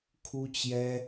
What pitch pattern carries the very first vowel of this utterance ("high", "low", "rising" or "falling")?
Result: high